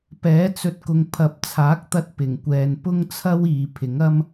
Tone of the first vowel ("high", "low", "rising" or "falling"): rising